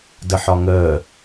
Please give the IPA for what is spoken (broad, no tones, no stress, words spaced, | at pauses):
dəħɒŋəː